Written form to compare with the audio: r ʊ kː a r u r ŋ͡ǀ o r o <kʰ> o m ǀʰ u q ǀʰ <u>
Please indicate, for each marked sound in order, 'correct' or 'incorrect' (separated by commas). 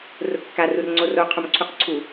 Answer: incorrect, correct